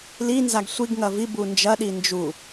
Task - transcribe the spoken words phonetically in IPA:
linzaɡ sʷiɡ ŋɐvi bund͡ʒɐɗi nd͡ʒu

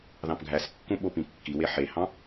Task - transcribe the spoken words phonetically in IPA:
ðɑ̃pɡʱæskːũ ɓopĩkːiwe ħehɑ̃

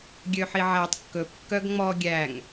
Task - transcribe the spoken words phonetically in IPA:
ɡʲøħiʕætˤ kːɵp kːœɡŋ͡mɔ ɡʲæŋ

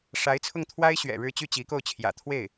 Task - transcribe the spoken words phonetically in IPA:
ʂa˧˥ɪ̯t͡sʰʊ˥˩ŋt̪ʰwa˥ɪ̯ ɕɥɛ̰˨˩ ɻɻ̩˥˧ t͡ɕy˥˩t͡ɕi˧˥ko˥˩ʊ̯ t͡ɕʰjä̰˨˩ t̪ʰwe˥˩ɪ̯

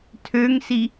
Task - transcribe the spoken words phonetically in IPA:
tʰøŋsi

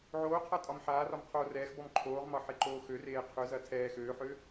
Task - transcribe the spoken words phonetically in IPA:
ʕoːqʰa tʼɒmħaːrɒm qʰoːrɛːxbɔm ǃʰoːʁmɒ ħeǃoːxøreː qʰøzɐ tʰɛː xøːħøː

